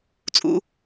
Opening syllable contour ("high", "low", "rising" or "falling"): low